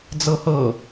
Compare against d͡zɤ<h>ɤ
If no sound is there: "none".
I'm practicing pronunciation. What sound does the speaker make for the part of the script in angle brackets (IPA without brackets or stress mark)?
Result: h